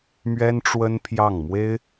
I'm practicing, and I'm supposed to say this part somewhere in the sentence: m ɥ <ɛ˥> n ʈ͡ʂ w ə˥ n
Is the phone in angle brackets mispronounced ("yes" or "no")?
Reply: no